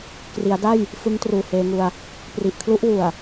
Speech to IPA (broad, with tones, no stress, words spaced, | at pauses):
kri˩˦a̯da˥˩j | fɯ˦˥ŋ truː˨˩heː˧ŋu˧a̯ | pri˨˩ʔkʰlu˦˥ʔwu˨˩a̯